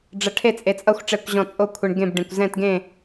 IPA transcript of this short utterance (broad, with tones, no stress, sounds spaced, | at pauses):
ɖ͡ʐ ʌ˧ ʈʰ e˥˧ t͡sʼ e˧ t͡sʼ ʌ˥˧ xʷ ʈ͡ʂ ɛ˥˧ kʷ ʑ ɔ̃˥˧ t͡sʼ o˥˧ kʷʰ ɯ˧ ɳ ɡ ẽ˥˧ b ɖ ẽ˧ kʷ z ɛ̃˥˧ t ɡ ẽ˥˧